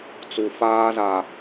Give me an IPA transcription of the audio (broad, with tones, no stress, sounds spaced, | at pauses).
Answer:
t͡s u˨ f aː˦ z a˨